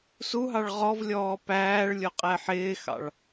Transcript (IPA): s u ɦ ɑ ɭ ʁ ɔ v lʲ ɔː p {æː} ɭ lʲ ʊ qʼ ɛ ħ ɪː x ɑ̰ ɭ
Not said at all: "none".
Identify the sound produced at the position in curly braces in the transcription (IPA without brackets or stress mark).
æː